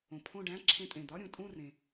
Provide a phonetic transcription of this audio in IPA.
õ˩pʰõ˦˨ɖæ̃˧˥˧ ǁʰẽ˧˩˧tʼẽ˩d̪ɒ˧˥˧ ɾʲũ˩tʼũ˦˨rẽ˩

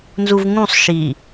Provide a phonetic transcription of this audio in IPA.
nzuvŋũsˤ ʃi

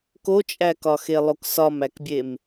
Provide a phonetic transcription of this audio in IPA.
kot͡ʃʼækɒxe lˠoksɒmækbʲem

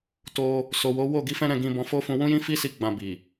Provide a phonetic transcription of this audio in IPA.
to˧ | so˨wo˨˦ wo˦˨ɡi˨˦fɛ̃˦ɾɛ̃˦˨ ɡĩ˧ bɔ̃˧fo˦ fũ˧wũ˦jĩ˦fi˦ si˦ɡ͡bã˧bi˨

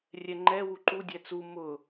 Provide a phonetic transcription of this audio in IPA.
rʲɛŋ͡ǃɛ wuǃu dʲɛt͡su mʊ

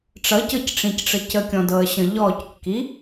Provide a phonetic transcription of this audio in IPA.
ʈ͡ʂʌcɤcʈ͡ʂĩcʈ͡ʂə cəkʲɔ̃dɤə̯ɕə̃ ʎɔckːi

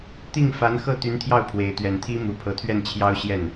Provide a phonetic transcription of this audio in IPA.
t̪i˥˩ŋfa˧˥nxɤ˥˩ t̪y˧˥nt̪ʰjɑ˥˩ʊ̯ pʰwe˧˥ɪ̯ t̪ɥɛ˨˩nt̪ʰi˥ mu˨˩pʰɤ˧˥t̪ʰɥɛ˥˩n t͡ɕʰjɑ˥ʊ̯ɕjɛ˥˩n

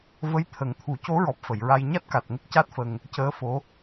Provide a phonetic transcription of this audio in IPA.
və˧˥jt̪ʰə˨˩ŋt̪ʰu˨˩˦ co˧˥ɹɔ˨˩p̚ fə˨˩˨j ɹa˧j ɲa˦˥t̚ka˨˩t̚ŋə˦˥k̚ca˦˥t̚ fə˧ŋ | cəː˧˥fo˧˥

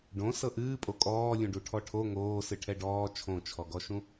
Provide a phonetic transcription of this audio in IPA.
ɖõ sɤʔɨːpʼo kʼɔːlʲũɖu ʈʰɔʈʰo ŋoː sɨʈʰɛɖɔː t͡ʃʰõt͡ʃʰɔɡɔʃũ

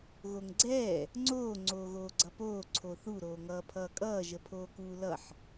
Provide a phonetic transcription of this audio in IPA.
ɣoŋɡ͡ǀɛː | ŋ͡ǀoː ŋ͡ǀoːɣoːɡ͡ǀʌpoː ǀʰoθu ɾoːŋʌːpʰʌːkʼʌː ʒəpʰoːkuːlʌħ

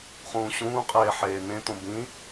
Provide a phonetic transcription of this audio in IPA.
χũːɕũːqʼeː ħeːnẽt̪õ bĩ

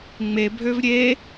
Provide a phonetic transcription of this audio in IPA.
ŋ͡mebʱøv ɾʲe

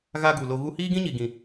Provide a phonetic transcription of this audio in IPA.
ɣa˧ ɡu˨lo˧ ɣu˧hiː˦ɡĩ˦ɲi˨ ɡĩ˨

